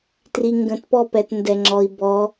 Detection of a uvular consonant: absent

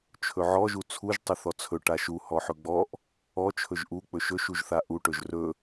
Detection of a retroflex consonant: present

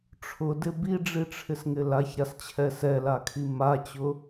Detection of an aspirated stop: present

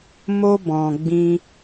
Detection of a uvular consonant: absent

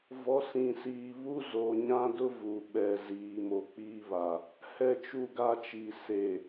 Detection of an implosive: present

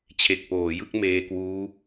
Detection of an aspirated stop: present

